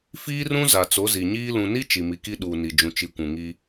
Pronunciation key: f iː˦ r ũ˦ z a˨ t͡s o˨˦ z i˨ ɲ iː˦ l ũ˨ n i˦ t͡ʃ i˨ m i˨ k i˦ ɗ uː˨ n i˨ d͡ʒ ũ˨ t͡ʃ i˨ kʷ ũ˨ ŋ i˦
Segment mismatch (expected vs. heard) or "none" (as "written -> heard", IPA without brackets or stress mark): none